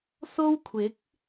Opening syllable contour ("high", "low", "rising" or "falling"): high